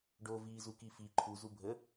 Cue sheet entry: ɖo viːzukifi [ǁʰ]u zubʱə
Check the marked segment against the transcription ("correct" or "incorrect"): incorrect